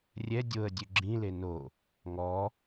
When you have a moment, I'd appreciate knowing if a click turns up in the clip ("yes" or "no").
yes